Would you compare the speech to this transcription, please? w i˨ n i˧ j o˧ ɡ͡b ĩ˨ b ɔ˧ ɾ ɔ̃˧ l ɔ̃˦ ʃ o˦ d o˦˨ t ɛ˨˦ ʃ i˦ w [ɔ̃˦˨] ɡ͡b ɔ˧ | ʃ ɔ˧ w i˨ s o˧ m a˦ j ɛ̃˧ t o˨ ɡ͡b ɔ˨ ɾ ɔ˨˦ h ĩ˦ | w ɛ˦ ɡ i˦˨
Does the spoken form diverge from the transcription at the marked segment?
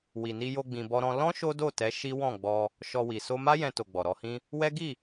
no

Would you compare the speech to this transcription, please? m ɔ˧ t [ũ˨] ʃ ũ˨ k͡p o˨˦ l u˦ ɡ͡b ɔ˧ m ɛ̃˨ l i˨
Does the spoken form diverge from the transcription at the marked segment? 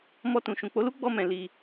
no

